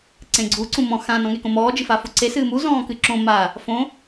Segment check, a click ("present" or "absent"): present